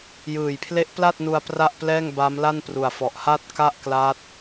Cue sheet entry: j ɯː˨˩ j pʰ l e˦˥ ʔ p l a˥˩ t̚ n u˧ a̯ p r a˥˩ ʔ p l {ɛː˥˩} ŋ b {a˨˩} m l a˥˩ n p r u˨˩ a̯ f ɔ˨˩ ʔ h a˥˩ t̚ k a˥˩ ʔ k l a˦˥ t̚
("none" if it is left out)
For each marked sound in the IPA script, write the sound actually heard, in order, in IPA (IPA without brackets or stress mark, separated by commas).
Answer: ɛː˥˩, a˦˥